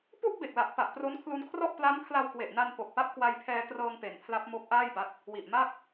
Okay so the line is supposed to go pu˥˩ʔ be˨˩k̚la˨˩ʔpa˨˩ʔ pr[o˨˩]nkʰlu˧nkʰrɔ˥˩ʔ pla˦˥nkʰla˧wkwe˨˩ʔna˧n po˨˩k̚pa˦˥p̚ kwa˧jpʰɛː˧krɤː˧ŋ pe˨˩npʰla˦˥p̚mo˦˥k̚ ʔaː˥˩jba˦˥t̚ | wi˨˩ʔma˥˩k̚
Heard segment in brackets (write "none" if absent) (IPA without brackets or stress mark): o˦˥